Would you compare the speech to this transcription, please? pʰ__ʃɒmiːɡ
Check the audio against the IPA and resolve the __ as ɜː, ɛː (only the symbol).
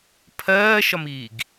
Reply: ɜː